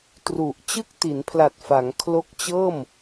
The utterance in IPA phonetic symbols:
t r u˨˩ ʔ t͡ɕ ɯ˥˩ k̚ t i˩˦ n pʰ l a˨˩ t̚ f a˩˦ ŋ kʰ l o˦˥ k̚ t͡ɕ ɤː˥˩ m

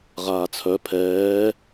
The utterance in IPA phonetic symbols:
ʁ aː t͡sʰ œ pʰ ɛː

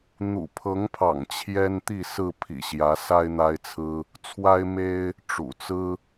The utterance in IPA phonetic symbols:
n̪ ṵ˨˩ pʰ ɤ˨˦ ŋ pʰ ɑ̰˨˩ ŋ t͡ɕʰ j ɛ˦ n t̪ i˥˨ s ɹ̩˥˨ pʰ ḭ˨˩ ɕ j ä˨˦ s a˦ ɪ̯ n̪ a˦ ɪ̯ t͡sʰ ɹ̩˦ | t͡sʰ w a˦ ɪ̯ m e˦ ɪ̯ | ʈ͡ʂ ṵ˨˩ t͡s ɹ̩˦

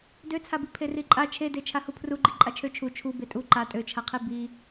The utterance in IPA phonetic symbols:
d ø t͡sʰ a b i pʰ e r i ǃʼ a t͡ʃʰ e d e t͡ʃʰ a h u pʰ r u ɡ͡ǃ i ǃʼ a t͡ʃʰ ø t͡ʃʰ u t͡ʃʰ u b e tʼ u ǃ a tʼ ø t͡ʃʰ a qʰ e b i

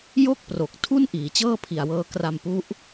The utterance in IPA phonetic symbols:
j o˥˩ k̚ p r o˨˩ k̚ tʰ u˥˩ n ʔ iː˩˦ t͡ɕ ɤː˥˩ pʰ i˨˩ a̯ w ɤː˧ k r a˧ m p u˦˥ ʔ

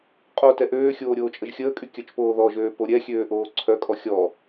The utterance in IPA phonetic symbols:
qʼ o t ɛ ʔ øː xʲ oː ɾʲ oː t͡ʃʼ ə ʒ xʲ əː kʼ y kʲ œ t͡ʃ p oː ð ɔ ʒ øː p o ɾʲ ɛ xʲ øː ʔ oː ǀʰ œ kʼ ɔ xʲ ɔ

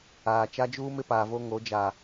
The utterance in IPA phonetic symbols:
aː˨ t͡ʃ a˦ d͡ʒ uː˦ m ɪ˦ p aː˨ v o˦ ŋ o˨˦ d͡ʒ a˨

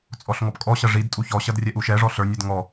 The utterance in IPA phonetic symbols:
t͡sʼ ɔ ɬ ŋ ɔ p kʼ ɔ ɕ ɐ ʐ i d tʼ u ç ɔ ɕ ɐ d rʲ ɛ ʔ u ʃ ɛ ʐ ɔ ɬ ə˞ nʲ ɛ d ŋ ɔ

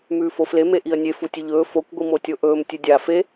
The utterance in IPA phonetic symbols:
m ʉː f o f l e m e ʔ i ə̯ nʲ e f u tʲ ɵ ʎ ɵː f o kʷ ɡʷ i m o tʲ o ʔ ɵː m tʲ ɨ dʲ a f e

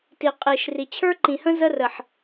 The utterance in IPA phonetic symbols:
t i˨ qʼ i˨ ʃ r i˨ t͡ɕʰ ə˞˦ ǃ ĩ˨ h ə̃˦ z ə˦ r ə˨ ħ

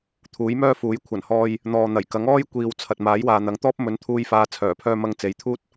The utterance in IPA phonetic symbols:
t̪ʰ uː˨˥ j m œː˥ f uː˨˥ j kʷʰ ɐ˨˩ n h ɔː˧ j | n̪ ɔː˨ n̪ ɐ˨˩ j k ɐ˨˥ ŋ ɔː˥ j kʷ iː˨ w t͡sʰ ɐ˨ t̚ m aː˨˥ j w aː˨ n̪ ɐ˨˥ ŋ t̪ ɔː˥ p̚ m ɵ˨˧ n t̪ʰ uː˧ j f aː˨˧ t͡sʰ œː˨˩ pʰ œː˧ m ɐ˧ ŋ t͡s e˨˥ j t̪ʰ uː˥ t̚

